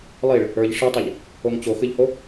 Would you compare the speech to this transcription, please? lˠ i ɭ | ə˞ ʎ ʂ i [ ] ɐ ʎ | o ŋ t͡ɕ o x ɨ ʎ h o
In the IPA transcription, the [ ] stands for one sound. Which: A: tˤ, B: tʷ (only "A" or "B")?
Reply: A